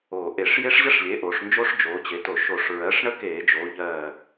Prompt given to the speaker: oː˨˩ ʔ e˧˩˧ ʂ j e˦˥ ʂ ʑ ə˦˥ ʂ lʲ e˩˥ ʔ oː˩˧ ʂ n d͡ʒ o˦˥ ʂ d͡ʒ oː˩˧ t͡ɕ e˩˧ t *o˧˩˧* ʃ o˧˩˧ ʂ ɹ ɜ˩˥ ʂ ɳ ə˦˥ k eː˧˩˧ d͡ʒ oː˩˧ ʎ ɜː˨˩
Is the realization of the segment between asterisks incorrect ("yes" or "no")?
no